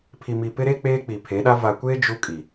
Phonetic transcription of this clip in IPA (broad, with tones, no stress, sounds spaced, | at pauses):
pʰ i˨ m i˨ p ɪ˦ ɾ e˦ k͡p eː˦ k͡p i˨ pʰ e˨˦ ɗ a˦ v a˨ kʷ eː˦ d͡ʒ u˦ kʼ i˨